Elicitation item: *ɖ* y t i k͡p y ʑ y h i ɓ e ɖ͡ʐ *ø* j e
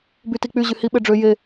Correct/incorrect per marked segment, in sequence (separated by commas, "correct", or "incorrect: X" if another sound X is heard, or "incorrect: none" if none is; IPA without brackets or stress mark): incorrect: b, correct